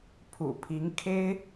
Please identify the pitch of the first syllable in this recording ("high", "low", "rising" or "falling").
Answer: low